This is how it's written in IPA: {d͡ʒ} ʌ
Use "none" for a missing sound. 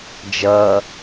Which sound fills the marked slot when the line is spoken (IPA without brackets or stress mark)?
d͡ʒ